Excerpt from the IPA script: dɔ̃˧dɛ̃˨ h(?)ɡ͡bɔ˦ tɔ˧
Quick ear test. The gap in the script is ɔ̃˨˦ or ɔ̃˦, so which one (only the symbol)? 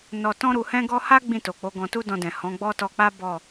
ɔ̃˨˦